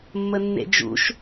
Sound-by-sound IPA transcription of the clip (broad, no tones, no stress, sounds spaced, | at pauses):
mː ə nː ḛ d͡ʒ ṵ ʃ